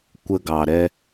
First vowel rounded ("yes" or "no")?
no